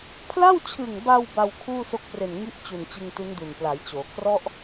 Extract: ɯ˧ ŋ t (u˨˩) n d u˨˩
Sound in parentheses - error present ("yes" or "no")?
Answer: yes